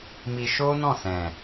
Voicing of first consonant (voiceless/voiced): voiced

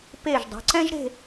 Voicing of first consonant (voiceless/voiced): voiceless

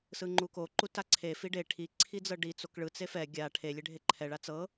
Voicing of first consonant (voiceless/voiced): voiceless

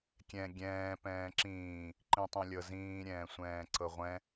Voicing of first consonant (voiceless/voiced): voiceless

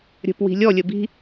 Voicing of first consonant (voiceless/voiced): voiced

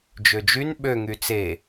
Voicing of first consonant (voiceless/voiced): voiced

